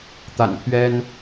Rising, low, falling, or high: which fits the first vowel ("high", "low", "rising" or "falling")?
low